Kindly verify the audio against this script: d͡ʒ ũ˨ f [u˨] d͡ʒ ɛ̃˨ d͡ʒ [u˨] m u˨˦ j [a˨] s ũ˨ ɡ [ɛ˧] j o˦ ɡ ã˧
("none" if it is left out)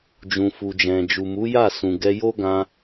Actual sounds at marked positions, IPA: u˨, u˨, a˦˨, ɛ˧

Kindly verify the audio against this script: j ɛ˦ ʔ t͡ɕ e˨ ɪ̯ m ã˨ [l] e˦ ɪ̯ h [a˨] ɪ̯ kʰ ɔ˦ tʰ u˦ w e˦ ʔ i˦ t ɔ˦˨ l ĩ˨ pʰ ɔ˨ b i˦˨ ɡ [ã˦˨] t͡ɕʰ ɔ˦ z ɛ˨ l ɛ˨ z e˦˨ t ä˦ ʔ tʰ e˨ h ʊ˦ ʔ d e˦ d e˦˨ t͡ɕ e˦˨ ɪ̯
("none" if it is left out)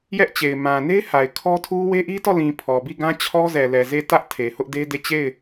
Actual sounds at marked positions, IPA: n, a˨, ã˦

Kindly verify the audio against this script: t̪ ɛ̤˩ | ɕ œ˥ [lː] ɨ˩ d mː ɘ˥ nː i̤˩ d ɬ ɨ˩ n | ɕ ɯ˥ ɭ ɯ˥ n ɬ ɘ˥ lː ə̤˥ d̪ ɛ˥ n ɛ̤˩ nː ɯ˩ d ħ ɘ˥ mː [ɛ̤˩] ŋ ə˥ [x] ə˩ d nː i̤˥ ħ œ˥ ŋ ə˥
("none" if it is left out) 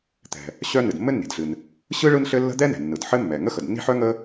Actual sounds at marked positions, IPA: n, ɛ˩, x

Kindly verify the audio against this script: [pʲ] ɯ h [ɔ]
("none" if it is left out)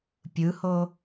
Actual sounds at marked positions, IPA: pʲ, o

